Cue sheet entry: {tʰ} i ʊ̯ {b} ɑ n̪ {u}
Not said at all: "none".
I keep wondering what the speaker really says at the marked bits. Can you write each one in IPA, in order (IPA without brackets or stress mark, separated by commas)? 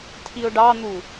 tʰ, ɖ, u